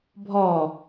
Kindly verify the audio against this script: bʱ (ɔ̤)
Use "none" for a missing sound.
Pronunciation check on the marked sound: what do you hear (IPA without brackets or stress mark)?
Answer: ɔ